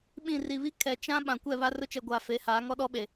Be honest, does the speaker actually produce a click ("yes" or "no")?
no